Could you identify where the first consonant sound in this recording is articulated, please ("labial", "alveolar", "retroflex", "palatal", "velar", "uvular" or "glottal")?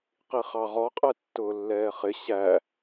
uvular